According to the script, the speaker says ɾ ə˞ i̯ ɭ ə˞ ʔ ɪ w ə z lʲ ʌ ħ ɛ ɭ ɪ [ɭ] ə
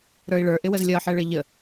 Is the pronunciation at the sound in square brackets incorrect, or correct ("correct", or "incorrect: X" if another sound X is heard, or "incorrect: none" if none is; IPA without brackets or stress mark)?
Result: incorrect: ʎ